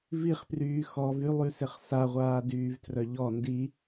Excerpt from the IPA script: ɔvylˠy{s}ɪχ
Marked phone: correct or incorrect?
correct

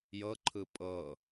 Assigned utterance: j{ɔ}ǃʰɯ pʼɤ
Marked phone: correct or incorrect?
incorrect: ɤ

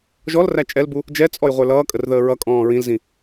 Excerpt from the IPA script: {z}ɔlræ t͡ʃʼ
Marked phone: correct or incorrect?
incorrect: ʒ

